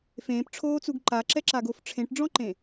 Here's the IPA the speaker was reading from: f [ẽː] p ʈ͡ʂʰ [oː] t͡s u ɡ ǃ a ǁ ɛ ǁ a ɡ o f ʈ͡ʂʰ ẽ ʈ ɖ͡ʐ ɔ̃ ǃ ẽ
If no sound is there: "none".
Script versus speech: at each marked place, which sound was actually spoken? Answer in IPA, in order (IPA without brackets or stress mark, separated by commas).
ẽː, oː